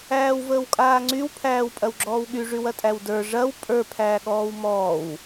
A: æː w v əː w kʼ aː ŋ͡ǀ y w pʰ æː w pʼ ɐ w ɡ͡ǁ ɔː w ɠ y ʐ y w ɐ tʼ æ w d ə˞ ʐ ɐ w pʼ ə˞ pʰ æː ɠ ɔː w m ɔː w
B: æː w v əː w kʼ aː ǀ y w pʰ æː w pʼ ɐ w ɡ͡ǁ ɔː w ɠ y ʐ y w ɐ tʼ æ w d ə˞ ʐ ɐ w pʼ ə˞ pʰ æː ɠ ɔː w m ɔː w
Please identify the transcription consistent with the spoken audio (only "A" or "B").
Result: A